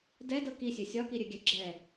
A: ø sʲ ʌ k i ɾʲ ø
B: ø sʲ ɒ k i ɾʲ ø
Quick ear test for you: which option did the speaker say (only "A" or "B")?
B